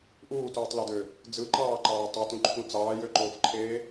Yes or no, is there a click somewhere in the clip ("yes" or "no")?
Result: yes